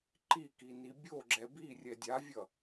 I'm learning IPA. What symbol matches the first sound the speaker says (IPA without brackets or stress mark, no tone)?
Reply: ǃ